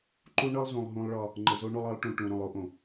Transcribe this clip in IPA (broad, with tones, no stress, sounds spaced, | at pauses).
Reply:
ǃ u˦ ɳ ɤ˦ lˠ z ũ˨ lˠ ɦ ũ˦ lˠ ɭ ɒ˦ | ŋ͡ǃ ɘ˨ z o˦ ɳ o˦ lˠ ɤ˨˦ lˠ ʈ ũ˨ ʈ ũ˨ ɾ õ˨ lˠ o˦ ʔ õ˨